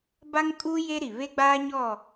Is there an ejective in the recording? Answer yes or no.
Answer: yes